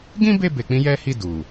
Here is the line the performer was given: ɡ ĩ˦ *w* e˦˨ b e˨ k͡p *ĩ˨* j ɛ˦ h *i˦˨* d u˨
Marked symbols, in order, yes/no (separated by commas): no, no, yes